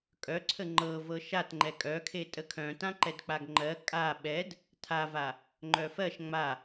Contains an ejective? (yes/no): yes